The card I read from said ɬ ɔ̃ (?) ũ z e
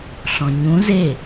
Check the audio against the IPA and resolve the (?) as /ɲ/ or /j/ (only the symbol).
ɲ